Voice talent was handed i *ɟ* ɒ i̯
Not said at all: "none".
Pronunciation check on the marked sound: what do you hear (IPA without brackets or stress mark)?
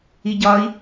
ɟ